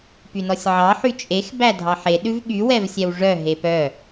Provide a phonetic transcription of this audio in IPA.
pynɔsʲʕɑ ħyt͡ʃʼex bædʱɑħe ɗʉvɠy wɛvsʲɛwʐœ ɦepœ

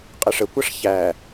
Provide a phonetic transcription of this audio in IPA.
qʼəʂəkʷɑʂ çæ

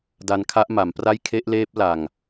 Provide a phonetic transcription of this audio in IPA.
da˧nkʰa˦˥ʔma˩˦mpra˥˩j kʰe˦˥ʔleː˦˥p̚ la˨˩ŋ

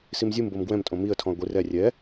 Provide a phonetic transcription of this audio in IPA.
simzʲɯm bomɡwɛ̃m tʼõmiə̯ tʰɔ̃ə̯ɡʷi rɛ rʲɛ

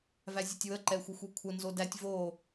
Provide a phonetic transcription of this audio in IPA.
væzʲətʲwə ǃɛxʷəxʷekʷʰə nzodætʲ vo

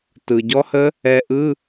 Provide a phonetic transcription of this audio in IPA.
tɯ˩ɟɔ˦˥hə˦˥ | ɛ˧ʔɯ˧˥˧

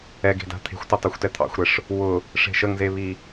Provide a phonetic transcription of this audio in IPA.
ɛɡe̤da̤ t̪ʰe̤xʷtʊ tˤyxʷtɛt̪ʰɑ̰xʷɾɛʂ | wʊ | ʂe̤ʃəŋzeβi

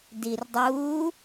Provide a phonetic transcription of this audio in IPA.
dirdˤuː

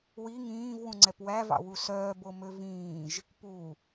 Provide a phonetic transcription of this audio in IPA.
wi ŋĩːvwũŋ͡ǀɛp wævɑ̰wu sœːbomø vĩːʒ | pu

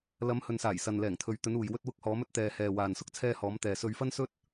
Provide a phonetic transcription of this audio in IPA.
lɐ˨˧mhɵ˨nsaː˨˩jsɐ˨n lɛː˨˩ŋt̪ʰɵ˨ɥt̪ɵ˨˧nuː˨j wɵ˧t̚wʊ˧k̚hɔː˨˧mɵ˧t̚ t̪ɛː˨hɛː˨waː˨n sʊ˥k̚t͡sʰɛː˧hɔː˨˧m t̪ɛː˨sɵ˧ɥfɐ˥nsɵ˥t̚

